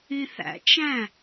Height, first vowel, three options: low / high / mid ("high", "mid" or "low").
high